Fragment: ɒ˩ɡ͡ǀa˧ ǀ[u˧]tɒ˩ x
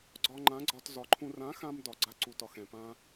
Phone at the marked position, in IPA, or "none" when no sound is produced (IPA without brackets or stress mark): u˩